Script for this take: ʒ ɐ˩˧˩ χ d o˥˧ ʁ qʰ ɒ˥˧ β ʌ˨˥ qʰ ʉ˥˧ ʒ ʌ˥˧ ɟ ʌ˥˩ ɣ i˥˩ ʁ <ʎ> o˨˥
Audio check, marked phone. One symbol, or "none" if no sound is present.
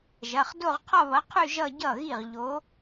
ʎ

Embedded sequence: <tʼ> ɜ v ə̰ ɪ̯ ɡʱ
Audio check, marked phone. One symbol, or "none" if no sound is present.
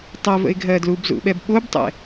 tˤ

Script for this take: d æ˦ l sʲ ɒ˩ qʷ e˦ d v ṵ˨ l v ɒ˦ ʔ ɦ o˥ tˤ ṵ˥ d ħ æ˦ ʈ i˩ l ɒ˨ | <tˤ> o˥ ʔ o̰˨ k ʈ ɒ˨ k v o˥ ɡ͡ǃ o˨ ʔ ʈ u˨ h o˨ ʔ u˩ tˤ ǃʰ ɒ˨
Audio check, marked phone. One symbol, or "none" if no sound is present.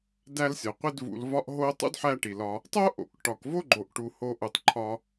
tˤ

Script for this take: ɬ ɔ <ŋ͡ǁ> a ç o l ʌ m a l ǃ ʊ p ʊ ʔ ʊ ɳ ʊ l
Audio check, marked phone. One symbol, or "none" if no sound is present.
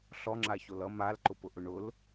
ŋ͡ǁ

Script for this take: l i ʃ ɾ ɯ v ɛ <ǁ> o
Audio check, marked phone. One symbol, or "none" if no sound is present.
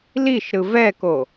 k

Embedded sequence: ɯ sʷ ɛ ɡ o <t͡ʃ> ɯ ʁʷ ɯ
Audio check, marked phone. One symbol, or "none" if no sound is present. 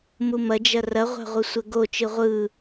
t͡ʃ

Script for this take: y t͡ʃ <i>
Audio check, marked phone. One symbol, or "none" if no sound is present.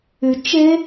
e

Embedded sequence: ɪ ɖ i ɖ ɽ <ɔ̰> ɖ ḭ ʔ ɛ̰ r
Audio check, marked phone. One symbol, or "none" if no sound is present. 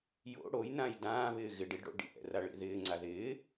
o̰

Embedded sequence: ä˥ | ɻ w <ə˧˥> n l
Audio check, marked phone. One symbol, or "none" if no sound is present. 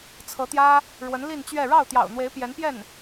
ə˧˥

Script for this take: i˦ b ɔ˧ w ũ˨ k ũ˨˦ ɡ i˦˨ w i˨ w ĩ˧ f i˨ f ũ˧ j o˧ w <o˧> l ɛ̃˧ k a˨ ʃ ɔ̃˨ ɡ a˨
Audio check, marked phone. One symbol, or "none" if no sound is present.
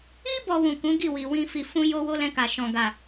o˦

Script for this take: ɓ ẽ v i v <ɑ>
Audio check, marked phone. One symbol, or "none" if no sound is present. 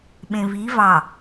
ɑ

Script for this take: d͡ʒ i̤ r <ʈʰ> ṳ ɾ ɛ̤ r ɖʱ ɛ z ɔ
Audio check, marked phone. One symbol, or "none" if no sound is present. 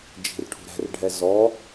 ʈʰ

